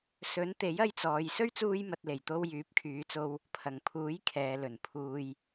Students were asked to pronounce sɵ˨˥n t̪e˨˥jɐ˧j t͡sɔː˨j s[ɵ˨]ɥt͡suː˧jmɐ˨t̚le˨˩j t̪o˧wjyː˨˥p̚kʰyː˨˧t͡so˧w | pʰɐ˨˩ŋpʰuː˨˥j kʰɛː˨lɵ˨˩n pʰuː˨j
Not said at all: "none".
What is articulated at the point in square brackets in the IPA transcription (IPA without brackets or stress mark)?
ɵ˥